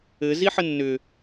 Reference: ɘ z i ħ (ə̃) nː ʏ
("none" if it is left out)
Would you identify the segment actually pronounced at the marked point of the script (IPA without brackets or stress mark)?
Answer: ə